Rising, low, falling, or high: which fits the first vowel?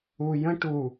low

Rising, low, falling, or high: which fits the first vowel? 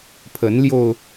rising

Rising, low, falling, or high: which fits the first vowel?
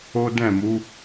high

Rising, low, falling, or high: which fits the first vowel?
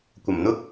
low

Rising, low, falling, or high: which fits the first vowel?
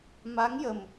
rising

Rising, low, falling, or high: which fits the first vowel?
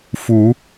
rising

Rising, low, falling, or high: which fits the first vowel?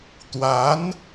rising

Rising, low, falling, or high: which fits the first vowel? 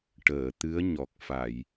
low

